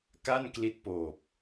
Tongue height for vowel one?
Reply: low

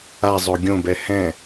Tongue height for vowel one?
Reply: low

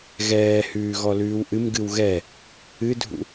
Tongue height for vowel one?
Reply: mid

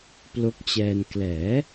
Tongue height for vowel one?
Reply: mid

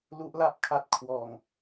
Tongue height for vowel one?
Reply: high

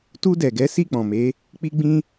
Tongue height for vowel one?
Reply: high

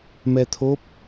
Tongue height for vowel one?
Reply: mid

